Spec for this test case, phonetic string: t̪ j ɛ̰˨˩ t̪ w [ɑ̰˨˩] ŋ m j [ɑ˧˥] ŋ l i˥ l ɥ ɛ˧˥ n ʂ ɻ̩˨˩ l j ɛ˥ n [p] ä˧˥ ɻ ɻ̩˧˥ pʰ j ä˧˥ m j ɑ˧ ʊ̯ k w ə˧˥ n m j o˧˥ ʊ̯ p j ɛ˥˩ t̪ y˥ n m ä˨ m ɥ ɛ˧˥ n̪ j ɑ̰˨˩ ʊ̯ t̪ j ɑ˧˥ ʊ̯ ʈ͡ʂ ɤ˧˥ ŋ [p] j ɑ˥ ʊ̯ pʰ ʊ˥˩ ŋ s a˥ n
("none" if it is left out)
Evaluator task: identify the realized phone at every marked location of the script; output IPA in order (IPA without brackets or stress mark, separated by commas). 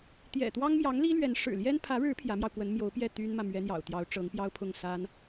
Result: ɑ˥, ɑ˧˥, pʰ, p